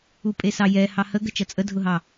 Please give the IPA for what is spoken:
upʼesɑjɛ hɑhəɡə t͡ʃʌt͡sʼədʱʊɦɑ

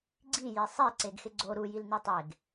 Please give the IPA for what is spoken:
ɡ͡ǀije sˤi ǀeɡxɪɡ͡ǀo ɾujil nitˤeɡ

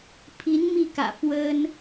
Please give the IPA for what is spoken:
pʰi˧˥n mi˥˩kä̰˨˩ fwə˥n

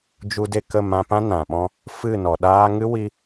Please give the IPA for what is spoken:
d͡ʒu˧de˦˨kə˦˨ mã˧pã˦nã˨ɓɔ̃˧ | fɨ˦˨nɔ˨ ɗaː˦ ŋɨ˦wi˧

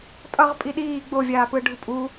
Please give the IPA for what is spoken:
tʼʌʁ pʼiɗiː ɡ͡bovʲaːpɯ ɖʱupʼu

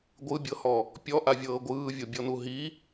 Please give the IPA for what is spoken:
ɡʷɯbʲɤhɔ | pʲɔʔavʲɤː ɡʷɯːvʲobʲɔnu ɦi

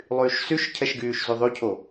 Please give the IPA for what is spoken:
lˠyːʃsyʃcʰɛʃ ɡyːʃzyðˤycʰo

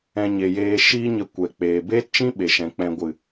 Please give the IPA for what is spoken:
ɛ̃˧ɲe˨jeː˧ ʃiː˦ɲə˧ kʷɛ˨k͡peː˨ beː˦tt͡ʃĩ˦ ɓe˨ʃɛ̃˨ k͡pɛ̃˨ɡʷɨ˨

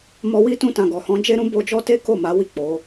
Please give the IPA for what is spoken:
mɔ˧wi˦ tũ˧tã˨ɡɔ˨ hɔ̃˧d͡ʒe˦ɾũ˦ bo˧d͡ʒɔ˦te˦ ko˦˨ma˨˦wi˦˨ k͡po˨˦

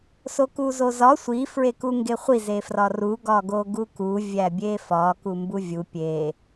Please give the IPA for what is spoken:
sokuzozɒ sʷi fɹekuŋɡeχʷi zefrɒru ɡɒɡoɡuku vʲæbʲefɒ kumbuvʲu pʲe

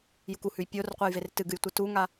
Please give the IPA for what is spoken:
jukuhʉj pʲorqʷejver tɨɡɨjtʷɨ tuŋa

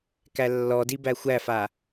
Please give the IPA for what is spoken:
kælːɔdi bæxʷæfa

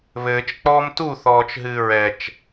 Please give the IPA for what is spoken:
βɘːt͡ʃk͡pɔːm tuθɔːt͡ʃɦɨː ɹɛt͡ʃ

